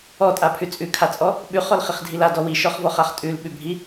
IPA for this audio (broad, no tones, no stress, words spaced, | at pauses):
ɔtʼapʰʉ t͡sʼʉkʰat͡sʼɔ | ɓʉχɔlχiχdʱil adɔ wiʃɔχvɔχaχ tʼʉlɓʉbʱi